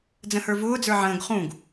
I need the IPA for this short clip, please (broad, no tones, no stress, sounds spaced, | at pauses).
d͡z ə̃ h ə˞ v ʊː d͡z ə˞ ʕ ə̃ː ɡ χ ũ ɡ